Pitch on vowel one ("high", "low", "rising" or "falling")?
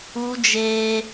high